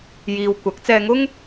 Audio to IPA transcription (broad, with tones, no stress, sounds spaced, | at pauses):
j iː˨ w kʷ ɐ˨˥ k̚ t͡s ɛː˧ ŋ ʊ˥ ŋ